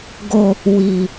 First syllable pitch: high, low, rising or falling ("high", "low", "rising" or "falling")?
low